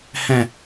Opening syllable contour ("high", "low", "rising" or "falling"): low